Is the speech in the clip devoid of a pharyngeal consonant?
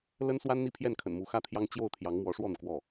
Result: yes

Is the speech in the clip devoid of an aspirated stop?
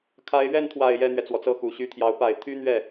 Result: no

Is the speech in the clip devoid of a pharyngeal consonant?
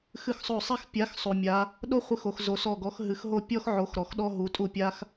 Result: no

